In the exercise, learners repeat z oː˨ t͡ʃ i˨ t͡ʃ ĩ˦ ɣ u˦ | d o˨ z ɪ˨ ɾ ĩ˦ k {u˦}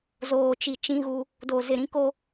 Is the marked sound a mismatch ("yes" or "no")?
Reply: yes